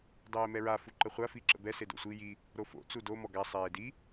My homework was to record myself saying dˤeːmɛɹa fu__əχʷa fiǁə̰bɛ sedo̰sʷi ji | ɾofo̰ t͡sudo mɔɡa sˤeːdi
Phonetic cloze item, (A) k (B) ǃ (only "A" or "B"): B